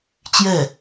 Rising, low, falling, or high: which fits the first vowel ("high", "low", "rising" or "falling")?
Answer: falling